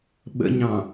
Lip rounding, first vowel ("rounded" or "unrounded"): unrounded